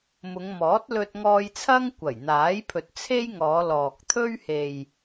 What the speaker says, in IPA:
m ʊ˨˧ ŋ m ɔː˨˥ t̚ l ɵ˧ t̚ ŋ ɔː˧ j t͡sʰ ɐ˥ ŋ kʷ ɐ˨˩ j n̪ aː˨˥ j pʰ ɵ˨ t̚ t͡sʰ e˥ j ŋ ɔː˨˧ l ɔː˨ k̚ t̪ʰ ɵ˥ ɥ h e˨ j

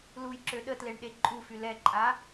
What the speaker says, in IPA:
l u j ǁ ø ɗ ə t l e ɳ ɗ e ǃʼ u f y l ɛ ǃʼ a

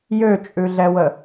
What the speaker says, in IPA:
j ø t͡ʃʼ ʉ ɮ ɛ w ə

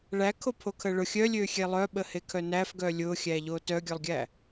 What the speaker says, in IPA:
ɭ æ kʰ o pʰ o kʰ ə ɭ ʊ xʲ œ lʲ ø xʲ e lˠ œ ɓ ə h e kʰ œ n æ f ɡ œ lʲ ʊ xʲ æ ʎ o t œ ɡʲ œ lˠ ɡʲ æ

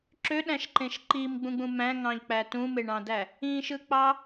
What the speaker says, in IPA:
ǁ ø ɗ æ̃ ʃ ǃ ẽ ʃ ǃ i m ɡ͡b ũ ɡ͡b ũ m æ̃ ŋ ɑ̃ ʎ k͡p æ t ũ m e ɳ ɑ̃ d æ | ĩ ʃ ɯ k͡p ɑ

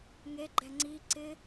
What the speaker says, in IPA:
ŋ e ɡ͡ǃ ɛ ŋ͡ǀ i ǀ ɪ

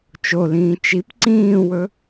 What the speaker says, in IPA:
t͡ʃ o l ĩː t͡ʃ i p ǀ ĩː w ɵ

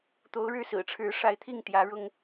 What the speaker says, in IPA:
t̪ o˨˦ ʊ̯ ɻ ɻ̩˥˨ s ɹ̩˨˩ ʈ͡ʂʰ ɻ̩˨˦ ʂ a˨˦ ɪ̯ t̪ʰ i˥˨ ŋ t̪ j ä˨˦ ɻ ʊ˦ ŋ

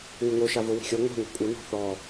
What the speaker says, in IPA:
ŋʷ ɘ ŋ o ʃ a v o w i̤ xʲ ɔ ŋʷ a̤ ŋʷ a̤ kʷʼ ɘ n ɔ̤ θ ɔ

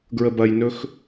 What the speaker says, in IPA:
ɡ ɹ ə b ɐ j n ɵ x

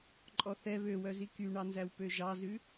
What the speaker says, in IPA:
ǃʼ ɔ θ ɛ β ø w œ z i k y ɳ ɑ n z æ w p ø ʒ ɑ z ʉ

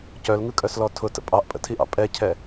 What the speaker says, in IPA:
c œ l ŋ ɯ kʼ œ s l ɔ tʰ ʊ t ə̰ pʼ ɑ ʔ pʼ ə̰ tʰ i ʔ ɑ̰ pʼ ɛ cʰ ɛ

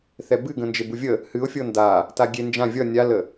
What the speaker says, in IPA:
θ ɛ b ɨ ɡ ə̃ n d͡ʒ e b u vʲ ə | h ɨ ʊ̯ fʲ ɤ n d a | t a ɡʲ e n d͡ʒ ã vʲ ʌ nʲ a l ə

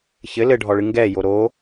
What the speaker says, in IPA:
ç ɘ l ɘ ɖʱ ɔ ɭ ɨ ŋ ɡ ɛ j o ɾ o

